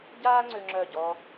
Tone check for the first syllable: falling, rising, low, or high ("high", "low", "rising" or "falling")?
high